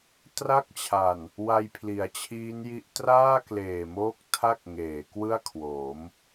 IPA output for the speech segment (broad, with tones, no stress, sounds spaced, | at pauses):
t r a˥˩ k̚ t͡ɕʰ a˨˩ n | w a˧ j pʰ l i˩˦ a̯ t͡ɕʰ iː˦˥ n j i˦˥ ʔ t r aː˥˩ k l eː˨˩ m oː˦˥ k̚ tʰ a˥˩ k̚ ŋ eː˩˦ k w ɯ˥˩ a̯ kʰ w oː˩˦ m